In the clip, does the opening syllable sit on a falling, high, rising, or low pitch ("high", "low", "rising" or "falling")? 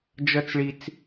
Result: high